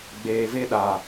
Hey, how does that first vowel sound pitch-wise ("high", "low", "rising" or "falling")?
low